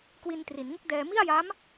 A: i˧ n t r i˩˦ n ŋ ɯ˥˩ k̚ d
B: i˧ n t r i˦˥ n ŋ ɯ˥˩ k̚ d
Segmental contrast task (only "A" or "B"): A